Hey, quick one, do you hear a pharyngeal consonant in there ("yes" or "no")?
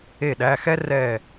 no